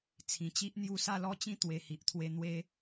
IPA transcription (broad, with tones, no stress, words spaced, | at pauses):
t͡sʰĩ˨˩t͡ɕi˦ʔ n̪ju˧sa˥˧lɔ˦t͡ɕĩ˥˧ t̪we˨˩hi˨ʔt̪ʰwe˧ n̪we˧